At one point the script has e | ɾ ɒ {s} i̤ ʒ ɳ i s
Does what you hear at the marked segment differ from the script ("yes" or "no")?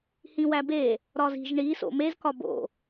yes